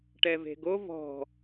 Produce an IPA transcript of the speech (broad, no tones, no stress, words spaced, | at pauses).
ʈɛve̤ɡo vɔ̤